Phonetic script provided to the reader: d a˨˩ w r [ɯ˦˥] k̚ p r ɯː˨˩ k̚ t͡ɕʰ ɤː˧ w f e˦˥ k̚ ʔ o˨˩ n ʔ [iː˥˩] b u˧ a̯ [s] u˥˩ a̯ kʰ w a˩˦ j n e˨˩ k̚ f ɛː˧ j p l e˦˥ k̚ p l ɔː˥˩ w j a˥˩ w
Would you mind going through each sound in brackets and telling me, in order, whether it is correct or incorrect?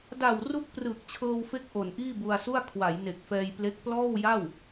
incorrect: u˦˥, correct, correct

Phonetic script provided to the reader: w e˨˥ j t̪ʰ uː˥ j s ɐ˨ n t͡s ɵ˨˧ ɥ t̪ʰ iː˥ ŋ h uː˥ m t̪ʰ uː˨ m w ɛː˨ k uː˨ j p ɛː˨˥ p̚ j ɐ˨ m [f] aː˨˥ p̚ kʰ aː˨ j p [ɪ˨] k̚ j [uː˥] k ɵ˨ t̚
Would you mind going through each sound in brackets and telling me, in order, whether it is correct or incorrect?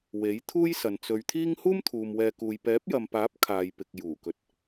incorrect: p, correct, incorrect: uː˨˩

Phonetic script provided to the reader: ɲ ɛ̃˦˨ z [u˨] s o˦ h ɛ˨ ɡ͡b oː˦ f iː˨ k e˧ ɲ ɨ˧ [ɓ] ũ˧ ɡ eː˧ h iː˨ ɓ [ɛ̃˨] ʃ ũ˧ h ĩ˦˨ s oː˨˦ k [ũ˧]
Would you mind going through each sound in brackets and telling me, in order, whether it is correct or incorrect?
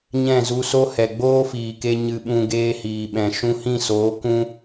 incorrect: u˧, correct, correct, correct

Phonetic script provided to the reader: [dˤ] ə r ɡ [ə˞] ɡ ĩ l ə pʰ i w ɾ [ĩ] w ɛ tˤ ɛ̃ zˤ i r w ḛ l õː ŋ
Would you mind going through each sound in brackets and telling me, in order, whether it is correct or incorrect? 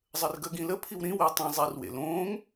incorrect: zˤ, incorrect: ə, correct

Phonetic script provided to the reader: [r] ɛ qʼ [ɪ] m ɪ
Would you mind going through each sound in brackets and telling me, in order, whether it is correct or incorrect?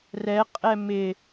correct, incorrect: ɛ

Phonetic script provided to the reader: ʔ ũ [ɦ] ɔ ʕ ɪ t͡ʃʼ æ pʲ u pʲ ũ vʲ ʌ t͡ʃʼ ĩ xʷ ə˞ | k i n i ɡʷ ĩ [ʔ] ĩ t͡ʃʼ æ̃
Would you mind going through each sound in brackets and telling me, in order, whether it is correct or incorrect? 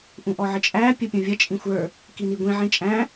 incorrect: ʔ, incorrect: ʕ

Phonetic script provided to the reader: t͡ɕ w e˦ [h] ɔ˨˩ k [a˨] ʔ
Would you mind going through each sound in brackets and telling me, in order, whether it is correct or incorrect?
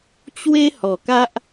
correct, incorrect: a˦

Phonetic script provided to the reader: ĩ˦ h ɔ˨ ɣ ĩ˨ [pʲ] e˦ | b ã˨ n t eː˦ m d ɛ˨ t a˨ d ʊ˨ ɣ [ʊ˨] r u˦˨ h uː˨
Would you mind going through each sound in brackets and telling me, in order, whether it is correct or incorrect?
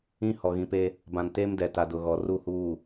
incorrect: p, incorrect: ɔ˨

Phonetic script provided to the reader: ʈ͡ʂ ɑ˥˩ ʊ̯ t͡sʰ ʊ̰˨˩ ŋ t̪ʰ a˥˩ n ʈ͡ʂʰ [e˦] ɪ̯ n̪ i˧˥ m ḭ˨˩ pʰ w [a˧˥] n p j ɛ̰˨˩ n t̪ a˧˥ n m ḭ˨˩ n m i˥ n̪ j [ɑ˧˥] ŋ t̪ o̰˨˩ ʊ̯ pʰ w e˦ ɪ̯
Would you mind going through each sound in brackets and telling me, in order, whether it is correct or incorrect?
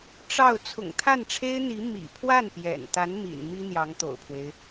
incorrect: e˥, incorrect: a˥˩, correct

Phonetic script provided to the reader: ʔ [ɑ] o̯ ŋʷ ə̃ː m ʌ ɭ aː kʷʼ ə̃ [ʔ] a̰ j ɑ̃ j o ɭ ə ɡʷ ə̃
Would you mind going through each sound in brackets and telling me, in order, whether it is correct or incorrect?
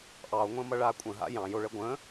correct, incorrect: ɦ

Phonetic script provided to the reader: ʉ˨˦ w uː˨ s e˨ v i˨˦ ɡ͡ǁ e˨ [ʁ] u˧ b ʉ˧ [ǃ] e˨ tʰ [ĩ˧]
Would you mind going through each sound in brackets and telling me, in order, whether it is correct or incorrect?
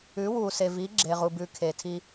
correct, incorrect: kʰ, incorrect: i˧

